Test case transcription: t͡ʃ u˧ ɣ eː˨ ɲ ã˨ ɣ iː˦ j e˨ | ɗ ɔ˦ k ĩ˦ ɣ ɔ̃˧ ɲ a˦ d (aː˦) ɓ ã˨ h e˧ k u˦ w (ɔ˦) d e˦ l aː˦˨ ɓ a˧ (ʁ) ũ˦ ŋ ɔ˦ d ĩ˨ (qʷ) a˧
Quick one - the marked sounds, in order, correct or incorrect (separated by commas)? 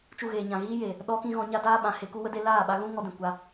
correct, incorrect, incorrect, incorrect